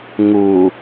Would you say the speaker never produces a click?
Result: yes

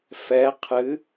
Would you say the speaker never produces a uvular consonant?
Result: no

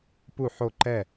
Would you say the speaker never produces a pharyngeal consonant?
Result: no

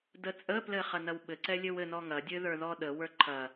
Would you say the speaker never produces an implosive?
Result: no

